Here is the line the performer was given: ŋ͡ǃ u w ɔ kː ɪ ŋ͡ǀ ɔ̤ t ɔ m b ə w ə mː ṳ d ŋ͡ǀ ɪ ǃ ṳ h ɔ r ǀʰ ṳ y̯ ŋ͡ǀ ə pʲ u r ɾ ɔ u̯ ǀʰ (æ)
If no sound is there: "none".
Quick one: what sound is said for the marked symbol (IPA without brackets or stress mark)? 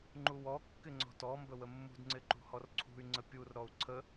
ə